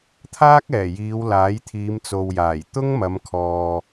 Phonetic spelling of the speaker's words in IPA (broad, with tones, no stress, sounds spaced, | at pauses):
t̪ʰ aː˥ k̚ ɛː˨˩ j iː˨˧ w l aː˨˥ j t̪ʰ iː˨˧ m t͡s o˨ w j aː˨˩ j t̪ ʊ˥ ŋ m ɐ˨˧ m kʰ ɔː˨